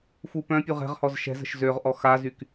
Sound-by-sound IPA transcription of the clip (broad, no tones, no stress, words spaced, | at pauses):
fupœ̃pʲu ʁɛ̤ʁhɔz ʃɛ̤zə̤ʃ zøʁ ʔɔxazyk